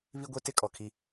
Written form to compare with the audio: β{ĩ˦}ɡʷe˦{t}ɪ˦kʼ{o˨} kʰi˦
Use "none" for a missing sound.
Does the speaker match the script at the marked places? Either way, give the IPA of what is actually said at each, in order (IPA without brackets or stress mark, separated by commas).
i˦, t, ɔ˨